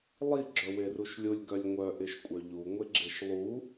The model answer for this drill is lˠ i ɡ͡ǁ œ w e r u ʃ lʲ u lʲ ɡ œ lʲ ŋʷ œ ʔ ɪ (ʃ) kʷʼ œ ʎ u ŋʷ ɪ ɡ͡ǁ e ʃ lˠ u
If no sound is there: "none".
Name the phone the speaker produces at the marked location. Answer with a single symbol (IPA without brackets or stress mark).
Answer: ʃ